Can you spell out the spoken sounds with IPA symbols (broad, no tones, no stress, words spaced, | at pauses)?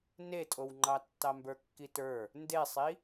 netʼowŋ͡ǃɑ tːɑmbə˞kːitə˞ | ndesˤi